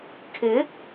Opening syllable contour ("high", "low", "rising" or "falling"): rising